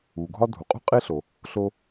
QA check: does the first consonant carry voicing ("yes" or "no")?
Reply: yes